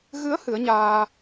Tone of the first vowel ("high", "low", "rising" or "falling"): rising